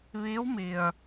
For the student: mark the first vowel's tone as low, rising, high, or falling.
rising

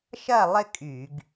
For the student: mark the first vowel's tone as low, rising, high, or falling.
falling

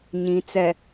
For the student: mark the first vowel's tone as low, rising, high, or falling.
low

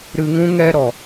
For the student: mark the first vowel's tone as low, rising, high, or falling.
low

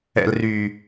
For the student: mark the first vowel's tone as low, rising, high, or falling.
low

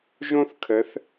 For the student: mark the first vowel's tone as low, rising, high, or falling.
high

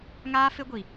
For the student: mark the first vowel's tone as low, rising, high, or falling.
high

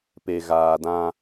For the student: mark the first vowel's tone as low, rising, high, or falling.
low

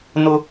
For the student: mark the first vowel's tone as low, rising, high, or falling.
high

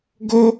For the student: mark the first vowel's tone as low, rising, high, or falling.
high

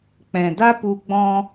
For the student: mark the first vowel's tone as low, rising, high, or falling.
low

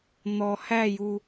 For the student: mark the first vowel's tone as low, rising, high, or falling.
low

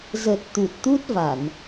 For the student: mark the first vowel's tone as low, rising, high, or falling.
low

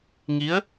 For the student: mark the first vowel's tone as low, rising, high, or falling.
rising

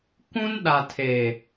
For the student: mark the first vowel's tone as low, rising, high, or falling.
high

